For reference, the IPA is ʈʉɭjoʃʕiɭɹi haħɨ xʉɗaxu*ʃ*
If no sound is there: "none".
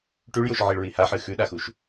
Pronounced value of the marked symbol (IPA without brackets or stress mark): ʃ